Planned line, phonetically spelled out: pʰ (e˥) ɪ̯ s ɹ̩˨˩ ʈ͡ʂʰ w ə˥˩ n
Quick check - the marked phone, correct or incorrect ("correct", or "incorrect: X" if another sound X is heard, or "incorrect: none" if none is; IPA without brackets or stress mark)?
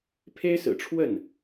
correct